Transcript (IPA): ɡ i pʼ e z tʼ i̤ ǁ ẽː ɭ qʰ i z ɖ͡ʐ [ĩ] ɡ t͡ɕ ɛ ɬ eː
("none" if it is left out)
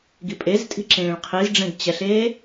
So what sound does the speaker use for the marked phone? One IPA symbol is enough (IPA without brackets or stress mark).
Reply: ẽ